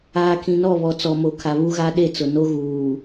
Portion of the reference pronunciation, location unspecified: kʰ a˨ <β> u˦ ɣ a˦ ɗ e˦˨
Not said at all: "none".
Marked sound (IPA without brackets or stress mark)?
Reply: β